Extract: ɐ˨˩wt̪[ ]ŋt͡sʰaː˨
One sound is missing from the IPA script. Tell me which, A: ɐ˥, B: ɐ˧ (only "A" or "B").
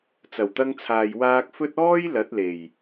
B